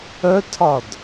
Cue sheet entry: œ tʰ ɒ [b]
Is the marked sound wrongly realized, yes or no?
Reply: yes